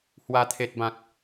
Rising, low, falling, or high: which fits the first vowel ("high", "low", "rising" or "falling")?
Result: high